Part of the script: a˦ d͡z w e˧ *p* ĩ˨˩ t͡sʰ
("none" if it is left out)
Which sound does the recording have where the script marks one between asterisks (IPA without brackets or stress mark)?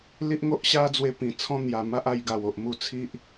p